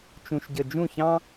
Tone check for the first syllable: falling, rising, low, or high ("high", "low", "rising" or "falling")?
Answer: low